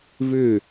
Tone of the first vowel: falling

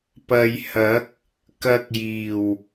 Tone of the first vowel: low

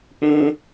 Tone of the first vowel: high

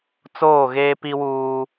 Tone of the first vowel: falling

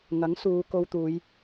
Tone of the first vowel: rising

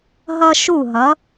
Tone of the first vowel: high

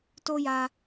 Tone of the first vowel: high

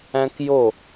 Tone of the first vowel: high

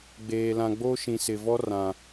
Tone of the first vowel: low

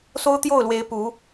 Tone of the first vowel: high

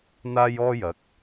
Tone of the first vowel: high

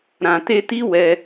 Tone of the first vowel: low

